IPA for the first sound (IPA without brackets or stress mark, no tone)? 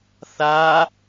θ